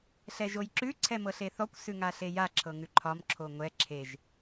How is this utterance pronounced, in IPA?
ɬ ɛ ʒ o j ǁ ʉ ǀʰ ɛ m ɤ ɬ e θ ɔ kʷ s ʉ ŋ a ɬ e j a ǁʰ ɤ ŋ ʉ ǃʰ ɒ m ǁʰ o ŋʷ ɛ ǁʰ e ʒ

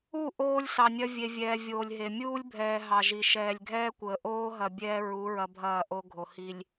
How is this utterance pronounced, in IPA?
u˦˨ ʔ oː˦ lʲ s ɑ˨ nʲ ɐ˦ vʲ e˨ vʲ ɛː˨ vʲ oː˨ lʲ ɦ e˨ mʲ uː˦ lʲ bʱ ɛː˨ ɦ ɑ˨ ʒ i˨ ʃ ɛː˨ lʲ ɡʱ ɛː˦ kʷ əː˨ ʔ oː˦ ɦ ɐ˨ bʲ ɛː˦ ɹ u˨˦ ɹ ɐ˦ bʱ ɐː˦˨ ʔ o˦ ɡʱ o˨ h i˨ lʲ

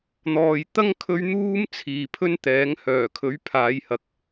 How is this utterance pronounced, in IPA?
n̪ ɔː˨ j t̪ ɐ˥ ŋ kʰ ɵ˧ ɥ n̪ uː˥ m t͡sʰ iː˨ pʰ ɵ˥ n t̪ ɛː˨˥ ŋ h œː˨˩ kʰ ɵ˨˥ ɥ pʰ aː˨˧ j h ɐ˨˥ k̚

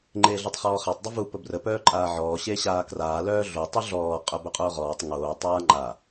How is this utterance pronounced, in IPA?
ŋ͡ǃ eː ɮ o tˤ χ ɔː χ a tˤ dˤ ə v u p ə b r ə p œː ǃʼ aː ʕ ɔː ɕ e ɕ aː k r aː l œː ɮ o tˤ u ɮ ɔː qʼ œ b œ qʼ oː ʁ ɔː tˤ ŋ oː tˤ aː ŋ͡ǃ a

